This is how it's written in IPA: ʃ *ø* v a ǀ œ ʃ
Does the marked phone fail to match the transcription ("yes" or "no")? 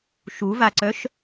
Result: yes